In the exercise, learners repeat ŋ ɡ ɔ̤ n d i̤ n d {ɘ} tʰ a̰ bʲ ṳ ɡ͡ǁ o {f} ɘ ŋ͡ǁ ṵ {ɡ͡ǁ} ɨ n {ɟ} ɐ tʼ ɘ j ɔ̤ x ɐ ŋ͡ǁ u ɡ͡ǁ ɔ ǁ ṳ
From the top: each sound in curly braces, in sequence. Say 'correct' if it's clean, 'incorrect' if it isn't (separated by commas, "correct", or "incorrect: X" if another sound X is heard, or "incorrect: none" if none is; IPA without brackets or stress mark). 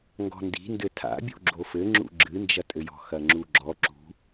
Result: correct, correct, correct, incorrect: d͡ʒ